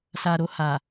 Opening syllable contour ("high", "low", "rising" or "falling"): low